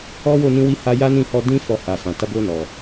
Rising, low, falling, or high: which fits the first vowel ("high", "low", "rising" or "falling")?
high